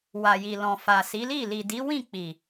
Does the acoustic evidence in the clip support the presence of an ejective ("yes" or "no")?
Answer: no